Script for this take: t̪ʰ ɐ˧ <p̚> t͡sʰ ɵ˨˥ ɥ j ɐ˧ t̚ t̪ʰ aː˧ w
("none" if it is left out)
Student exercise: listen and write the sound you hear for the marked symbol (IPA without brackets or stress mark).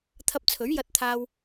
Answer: p̚